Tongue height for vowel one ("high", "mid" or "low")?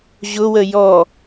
high